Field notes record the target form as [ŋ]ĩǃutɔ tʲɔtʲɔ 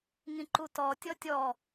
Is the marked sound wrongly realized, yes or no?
no